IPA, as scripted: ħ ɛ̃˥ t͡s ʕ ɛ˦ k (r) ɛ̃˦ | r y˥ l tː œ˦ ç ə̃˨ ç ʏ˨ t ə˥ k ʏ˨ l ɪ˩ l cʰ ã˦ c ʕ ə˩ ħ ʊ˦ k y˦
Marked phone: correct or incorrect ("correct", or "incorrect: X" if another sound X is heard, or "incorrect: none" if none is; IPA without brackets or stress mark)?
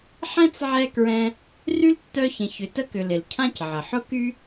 incorrect: ɹ